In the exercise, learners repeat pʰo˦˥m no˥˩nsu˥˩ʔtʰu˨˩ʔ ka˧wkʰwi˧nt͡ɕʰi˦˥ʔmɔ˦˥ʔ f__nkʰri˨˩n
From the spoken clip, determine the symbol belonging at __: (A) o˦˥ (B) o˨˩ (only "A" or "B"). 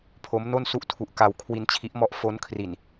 A